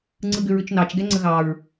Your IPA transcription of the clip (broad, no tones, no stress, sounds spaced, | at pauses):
ŋ͡ǀ ɯ ɡ ʏ ɹ ʏ t͡ʃ n ɑ t͡ʃ ɡ ɛ ŋ͡ǀ ə ɣ ɑ ɹ